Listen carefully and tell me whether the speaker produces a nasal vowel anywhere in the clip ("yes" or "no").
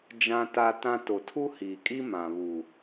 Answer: yes